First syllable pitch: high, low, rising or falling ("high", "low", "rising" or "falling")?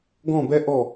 falling